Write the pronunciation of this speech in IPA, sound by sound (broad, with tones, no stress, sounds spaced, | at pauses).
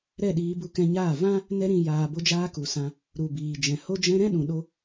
ɾ ɛ˦˨ ɗ iː˧ b u˧ k ɛ̃˧ ɲ aː˦˨ v ã˦ | n ɛ˧ ɾ ĩ˨ j aː˨ b o˧ d͡ʒ aː˧ k u˨ s ã˧ | ɾ u˨ b iː˨ d͡ʒ ɛ̃˨ h o˦ d͡ʒ ɛ̃˦ ɾ ɛ̃˦ ɗ ũ˨ ɗ o˧